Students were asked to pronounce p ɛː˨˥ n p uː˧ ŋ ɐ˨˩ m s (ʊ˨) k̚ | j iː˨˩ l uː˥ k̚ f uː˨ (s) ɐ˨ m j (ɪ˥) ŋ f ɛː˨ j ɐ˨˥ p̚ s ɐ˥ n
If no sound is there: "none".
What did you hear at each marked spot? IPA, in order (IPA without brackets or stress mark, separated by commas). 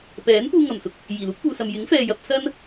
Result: ʊ˧, s, ɪ˨˥